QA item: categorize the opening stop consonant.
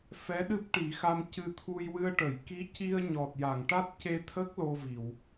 implosive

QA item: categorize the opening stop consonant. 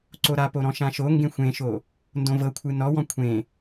click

